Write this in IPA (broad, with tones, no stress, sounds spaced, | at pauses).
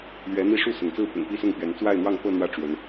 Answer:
l ɥ ɛ˨˦ n̪ i˥˨ ʂ u˥˨ s ʊ˩ ŋ t͡s ɹ̩˥˨ p ʊ̰˨˩ ŋ p i˦ s ʊ˥˨ ŋ p ɥ ɛ˨˦ n t͡s w a˥˨ ɪ̯ n̪ w ɑ˥˨ ŋ p ɤ˥˨ n̪ w ä˥˨ ʈ͡ʂ w ə˨˦ n